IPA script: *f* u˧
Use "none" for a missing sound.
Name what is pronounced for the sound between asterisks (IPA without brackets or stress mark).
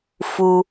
f